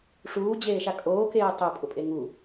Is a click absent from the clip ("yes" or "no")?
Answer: yes